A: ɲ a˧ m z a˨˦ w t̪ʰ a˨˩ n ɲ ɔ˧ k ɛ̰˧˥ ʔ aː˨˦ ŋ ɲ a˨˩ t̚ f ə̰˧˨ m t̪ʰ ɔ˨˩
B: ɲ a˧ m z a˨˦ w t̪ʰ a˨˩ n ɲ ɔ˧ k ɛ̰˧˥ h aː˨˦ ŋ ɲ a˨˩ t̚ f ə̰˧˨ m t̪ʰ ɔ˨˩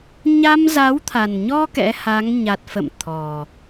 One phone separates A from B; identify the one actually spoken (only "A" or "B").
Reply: B